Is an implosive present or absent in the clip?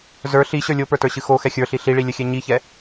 absent